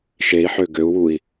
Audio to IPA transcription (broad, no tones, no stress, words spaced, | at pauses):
ʃei̯ħø ɡøu̯wui̯